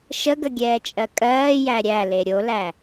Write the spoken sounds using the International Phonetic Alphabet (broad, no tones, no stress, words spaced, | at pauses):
ʃəɡəɡʲɛːt͡ʃʼɜ kʼɜːjæ ɾʲæle ɾʲolæ